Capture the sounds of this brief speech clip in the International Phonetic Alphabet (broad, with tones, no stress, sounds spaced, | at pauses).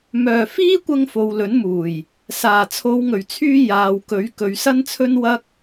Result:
m œː˨˩ f iː˥ kʷ ɐ˧ ŋ f o˨˧ w l ɵ˨˥ n m uː˨˩ j | s aː˨˩ t͡sʰ o˨˧ w ŋ ɵ˨˩ ɥ t͡sʰ yː˧ j aː˨ w k ɵ˨˥ ɥ k ɵ˨ ɥ s ɐ˥ n t͡sʰ ɵ˥ n w ɐ˥ k̚